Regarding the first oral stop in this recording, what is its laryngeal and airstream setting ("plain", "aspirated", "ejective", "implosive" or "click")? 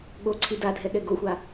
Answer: implosive